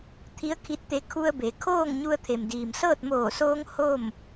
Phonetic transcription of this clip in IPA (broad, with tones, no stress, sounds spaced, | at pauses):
t̪ʰ i˧˥ ə̯ kʰ i˧ t̚ t̪ e˧˥ kʰ u˧ ə̯ b e˩˧ kʰ oː˥˨ ŋ ɲ u˧ ə̯ t̪ʰ e˩ m d iː˩ m s ɤː˥˨ t̚ m oː˧˩ s oː˧ ŋ h o˥˨ m